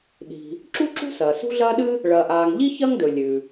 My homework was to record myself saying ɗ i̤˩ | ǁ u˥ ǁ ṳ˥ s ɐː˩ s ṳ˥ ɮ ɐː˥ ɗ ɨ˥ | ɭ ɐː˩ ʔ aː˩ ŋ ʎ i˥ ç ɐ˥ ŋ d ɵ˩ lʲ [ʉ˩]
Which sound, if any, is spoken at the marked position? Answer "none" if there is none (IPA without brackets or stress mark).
ʉ˩